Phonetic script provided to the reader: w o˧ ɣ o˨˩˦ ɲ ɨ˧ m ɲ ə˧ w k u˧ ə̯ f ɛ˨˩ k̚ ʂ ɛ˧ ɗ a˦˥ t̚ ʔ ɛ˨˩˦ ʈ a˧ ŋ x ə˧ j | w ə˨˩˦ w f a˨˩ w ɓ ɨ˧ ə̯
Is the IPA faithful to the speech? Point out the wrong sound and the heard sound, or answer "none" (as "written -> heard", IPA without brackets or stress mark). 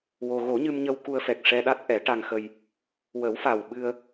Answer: none